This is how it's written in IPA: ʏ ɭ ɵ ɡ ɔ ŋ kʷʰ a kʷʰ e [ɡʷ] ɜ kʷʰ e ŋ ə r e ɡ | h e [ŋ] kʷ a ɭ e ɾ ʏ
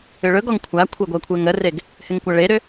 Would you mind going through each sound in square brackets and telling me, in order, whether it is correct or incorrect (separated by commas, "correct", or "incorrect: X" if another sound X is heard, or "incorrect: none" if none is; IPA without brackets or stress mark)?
correct, correct